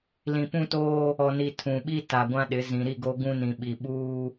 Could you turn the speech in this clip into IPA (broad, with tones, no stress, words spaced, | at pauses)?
lĩ˨pũ˦toː˦ | ɔ˨ni˨ tʰũ˨ɓi˦ ta˨ɡʷã˦ɗɪ˨˦ zĩ˨ɾi˦˨ɡo˦ ɡũ˦nĩ˨ɓi˨ɓuː˦